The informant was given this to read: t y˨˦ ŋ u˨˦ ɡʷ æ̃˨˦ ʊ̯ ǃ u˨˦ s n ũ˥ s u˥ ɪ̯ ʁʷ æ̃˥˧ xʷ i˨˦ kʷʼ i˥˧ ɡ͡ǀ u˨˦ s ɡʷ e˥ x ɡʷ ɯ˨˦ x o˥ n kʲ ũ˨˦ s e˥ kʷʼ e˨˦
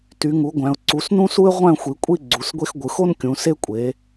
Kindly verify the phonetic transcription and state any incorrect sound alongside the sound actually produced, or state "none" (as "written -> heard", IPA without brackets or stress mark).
ǃ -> ǀ